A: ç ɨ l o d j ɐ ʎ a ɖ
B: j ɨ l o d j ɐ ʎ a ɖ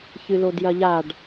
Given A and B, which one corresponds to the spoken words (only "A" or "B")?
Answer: A